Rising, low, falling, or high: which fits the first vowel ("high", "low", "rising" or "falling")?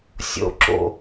high